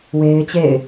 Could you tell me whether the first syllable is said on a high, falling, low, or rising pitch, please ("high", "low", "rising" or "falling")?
high